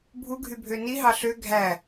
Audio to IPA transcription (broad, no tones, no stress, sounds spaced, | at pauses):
bʱ u ɡʱ y bʱ ø n i ɦ ɑ ɬ ø ɡʱ æ